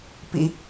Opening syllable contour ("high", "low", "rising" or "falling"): low